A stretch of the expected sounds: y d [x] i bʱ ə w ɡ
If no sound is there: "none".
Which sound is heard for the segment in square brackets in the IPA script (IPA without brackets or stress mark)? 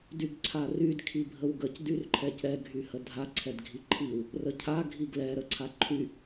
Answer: kʰ